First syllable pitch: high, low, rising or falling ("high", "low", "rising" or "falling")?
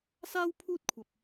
high